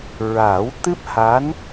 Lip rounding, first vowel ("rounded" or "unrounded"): unrounded